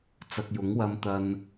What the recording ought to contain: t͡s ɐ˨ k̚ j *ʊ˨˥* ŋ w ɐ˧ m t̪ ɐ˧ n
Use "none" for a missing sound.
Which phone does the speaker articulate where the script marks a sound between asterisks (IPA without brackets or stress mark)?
ʊ˨˥